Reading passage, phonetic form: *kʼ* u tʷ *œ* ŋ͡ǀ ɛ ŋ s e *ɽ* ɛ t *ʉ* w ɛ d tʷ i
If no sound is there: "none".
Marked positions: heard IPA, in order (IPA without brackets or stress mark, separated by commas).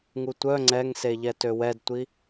ŋ, œ, ʎ, ø